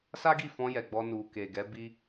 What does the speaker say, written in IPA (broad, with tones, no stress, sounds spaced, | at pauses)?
s a˦ ɡ i˦˨ f ɔ̃˧ j ɛ˨ ɡ͡b ɔ˧ n u˨ k e˨ ɡ ɛ˨˦ b i˦